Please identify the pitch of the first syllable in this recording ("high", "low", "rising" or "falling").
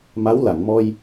rising